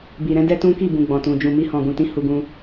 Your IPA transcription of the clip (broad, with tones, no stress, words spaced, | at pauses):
bi˨ɾɛ̃˨˦dɛ˦ tũ˦ ki˦˨bũ˨ ɡ͡bɔ̃˨tũ˨ d͡ʒũ˨mi˧hɔ̃˨ ɡũ˨tĩ˨˦ hu˧ɡũ˧